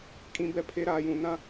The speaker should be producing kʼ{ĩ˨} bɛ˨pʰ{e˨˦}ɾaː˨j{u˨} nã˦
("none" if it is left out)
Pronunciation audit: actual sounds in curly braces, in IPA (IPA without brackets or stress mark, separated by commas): ĩ˨, e˨˦, ũ˨